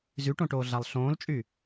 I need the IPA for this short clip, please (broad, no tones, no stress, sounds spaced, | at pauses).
z y ʈ õ ʈ oː ɮ a lˠ ɬ õː l t͡ʃʼ y